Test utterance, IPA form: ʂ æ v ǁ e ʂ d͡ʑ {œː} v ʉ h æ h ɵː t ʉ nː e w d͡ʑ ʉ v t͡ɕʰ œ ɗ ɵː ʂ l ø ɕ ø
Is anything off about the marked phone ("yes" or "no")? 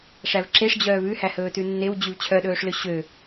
no